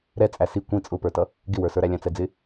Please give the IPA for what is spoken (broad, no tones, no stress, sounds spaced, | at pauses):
ɾ ɛ t͡sʼ æ s i kʷ ĩ t͡sʼ ʊ p ə˞ t ʌ | ɡ ɪ w ə˞ s ə˞ ɾ æ lʲ æ̃ t͡s ɛ d͡z ɪ